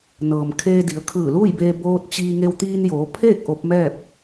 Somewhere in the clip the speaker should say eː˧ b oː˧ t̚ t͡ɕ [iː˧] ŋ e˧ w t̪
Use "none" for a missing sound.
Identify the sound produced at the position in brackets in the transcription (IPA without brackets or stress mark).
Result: iː˧